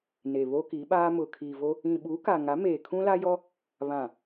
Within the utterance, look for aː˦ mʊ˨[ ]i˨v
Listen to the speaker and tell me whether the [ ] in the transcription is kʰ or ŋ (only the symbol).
kʰ